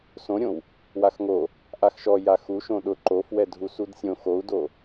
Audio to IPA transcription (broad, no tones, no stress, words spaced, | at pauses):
sõɾʲõw | waxŋo | ʔaxʃɔ jaxu ʃõɗʊ ǃofwɛ dʱusudsʲõ xou̯do